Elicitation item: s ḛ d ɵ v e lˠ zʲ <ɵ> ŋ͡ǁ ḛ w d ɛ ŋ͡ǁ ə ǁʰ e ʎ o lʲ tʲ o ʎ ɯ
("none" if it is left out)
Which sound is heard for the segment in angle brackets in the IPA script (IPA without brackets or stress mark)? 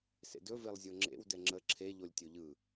o